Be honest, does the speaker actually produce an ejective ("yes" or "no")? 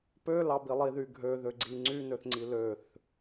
no